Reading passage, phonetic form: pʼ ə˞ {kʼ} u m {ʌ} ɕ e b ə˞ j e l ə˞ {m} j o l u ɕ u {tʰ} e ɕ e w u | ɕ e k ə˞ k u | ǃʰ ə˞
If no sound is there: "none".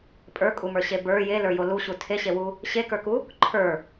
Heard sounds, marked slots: kʼ, ə˞, none, tʰ

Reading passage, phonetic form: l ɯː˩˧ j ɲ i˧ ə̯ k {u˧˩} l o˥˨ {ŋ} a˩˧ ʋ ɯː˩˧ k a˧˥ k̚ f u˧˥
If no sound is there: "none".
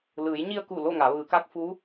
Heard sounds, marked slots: u˧˩, ŋ

